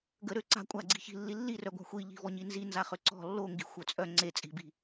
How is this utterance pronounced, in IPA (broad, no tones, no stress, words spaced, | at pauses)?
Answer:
ɡəɾø ǀa̤ kʷʼaɡ͡ǀi̤çi̤ lːilːirœɡʷa̤ xʷi ʎi̤vɔɲinzi nzaχøǀɔ̤ lːoŋɡi̤ xʷœt͡sʼœ ŋ͡ǀe t͡sʼi̤bi̤